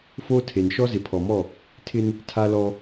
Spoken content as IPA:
f oː˦ tʰ e˨ n ʃ ɔ˦ z ɪ˨ pʰ ɔ˨ m ɔ˦˨ | tʰ ɪ˦ n | tʰ a˦ l ɔ˦

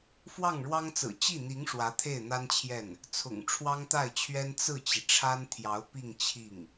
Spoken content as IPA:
f w ɑ˥˩ ŋ ɻ w ɑ˥ ŋ t͡s ɹ̩˨˩ t͡ɕ i˥˩ n̪ i˧˥ ŋ ʂ w ä˧˥ t̪ʰ e˥˩ ɪ̯ n̪ a˥ n t͡ɕʰ j ɛ˥˩ n | t͡sʰ ʊ̰˨˩ ŋ ʈ͡ʂʰ w ɑ˥ ŋ t̪ a˥˩ ɪ̯ t͡ɕʰ ɥ ɛ˥ n t͡s ɹ̩˥˩ t͡ɕ i˩ ʈ͡ʂʰ a˥ n t̪ʰ j ɑ˧˥ ʊ̯ p i˥˧ ŋ t͡ɕʰ i˥˩ ŋ

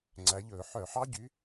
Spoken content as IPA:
ŋ͡ǀ æ˨˥ ʎ ɵː˧˩˧ ħ œ˧˩˧ ħ ɑ˦˥ ɟ y˨˥

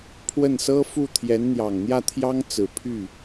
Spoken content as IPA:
pʰ w ə˥˩ n s ɤ˥ f u˥˩ t̪ʰ j ɛ˧˥ n n̪ j ɑ˨˩ ŋ n̪ j ä˥˩ t̪ʰ j ɑ˥ ŋ t͡s ɹ̩˨˩ pʰ y˥˩

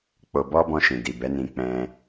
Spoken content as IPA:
k͡p o˧ b ɔ˦ b ɔ̃˧ ʃ ĩ˨ d i˨ b ɛ˨˦ n ĩ˧ k͡p ɛ̃˧

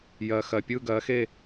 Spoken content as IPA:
j ɜ˧˩ x ɜ˧˩ pʲ ɯ˥˧ ɡ ɜ˨˥ x e˥˧

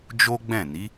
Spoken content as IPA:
d͡ʒ o˦ ɡ͡b ɛ̃˦˨ n i˨˦

